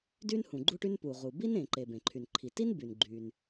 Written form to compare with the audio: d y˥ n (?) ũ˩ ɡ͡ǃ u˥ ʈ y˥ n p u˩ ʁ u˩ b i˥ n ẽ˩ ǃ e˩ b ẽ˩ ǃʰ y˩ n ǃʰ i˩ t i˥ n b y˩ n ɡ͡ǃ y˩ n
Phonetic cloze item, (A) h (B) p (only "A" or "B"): A